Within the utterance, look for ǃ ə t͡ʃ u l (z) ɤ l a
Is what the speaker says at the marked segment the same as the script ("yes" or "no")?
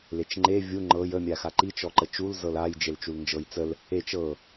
yes